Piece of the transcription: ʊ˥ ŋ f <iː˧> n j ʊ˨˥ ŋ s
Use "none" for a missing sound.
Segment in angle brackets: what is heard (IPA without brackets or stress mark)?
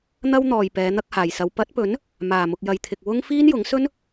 iː˥